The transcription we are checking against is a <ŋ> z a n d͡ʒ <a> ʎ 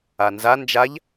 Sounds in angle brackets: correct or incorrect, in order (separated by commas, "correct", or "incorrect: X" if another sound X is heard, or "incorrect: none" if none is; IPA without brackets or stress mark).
incorrect: n, correct